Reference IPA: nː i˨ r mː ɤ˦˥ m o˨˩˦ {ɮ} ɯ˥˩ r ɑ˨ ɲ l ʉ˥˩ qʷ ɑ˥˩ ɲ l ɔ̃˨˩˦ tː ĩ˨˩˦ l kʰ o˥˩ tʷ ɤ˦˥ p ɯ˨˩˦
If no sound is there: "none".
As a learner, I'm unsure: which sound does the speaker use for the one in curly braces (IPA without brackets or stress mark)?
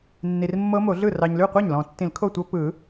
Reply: ɮ